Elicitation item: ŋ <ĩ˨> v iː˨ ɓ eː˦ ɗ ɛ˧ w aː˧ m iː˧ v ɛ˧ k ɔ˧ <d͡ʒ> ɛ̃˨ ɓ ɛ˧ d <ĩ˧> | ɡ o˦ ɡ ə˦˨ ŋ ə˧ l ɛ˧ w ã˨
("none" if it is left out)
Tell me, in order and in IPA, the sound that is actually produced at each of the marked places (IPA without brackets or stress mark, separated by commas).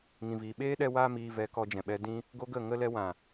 ĩ˨, d͡ʒ, ĩ˧